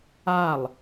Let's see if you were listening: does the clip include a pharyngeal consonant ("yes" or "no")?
no